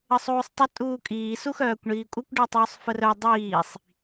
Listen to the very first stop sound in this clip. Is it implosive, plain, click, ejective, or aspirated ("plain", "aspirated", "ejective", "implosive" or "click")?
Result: plain